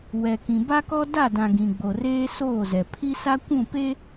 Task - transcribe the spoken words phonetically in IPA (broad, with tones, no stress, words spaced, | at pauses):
wɛ˨kĩ˨ ba˦kɔ˦ da˦˨dã˨ ɡĩ˨ɡ͡bo˨reː˦ soː˦˨zɛ˨ pʰi˦sa˦kʷũ˦˨pe˦